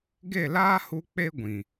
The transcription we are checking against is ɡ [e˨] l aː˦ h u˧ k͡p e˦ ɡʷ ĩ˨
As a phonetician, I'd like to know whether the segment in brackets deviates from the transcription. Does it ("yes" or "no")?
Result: yes